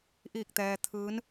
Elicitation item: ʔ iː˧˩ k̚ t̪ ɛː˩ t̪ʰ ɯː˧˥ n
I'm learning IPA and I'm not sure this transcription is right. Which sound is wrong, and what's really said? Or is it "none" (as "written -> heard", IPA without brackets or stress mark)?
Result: none